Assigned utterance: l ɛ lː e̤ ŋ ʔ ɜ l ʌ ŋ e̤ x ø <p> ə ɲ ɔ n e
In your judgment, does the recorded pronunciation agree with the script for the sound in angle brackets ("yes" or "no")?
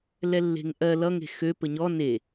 yes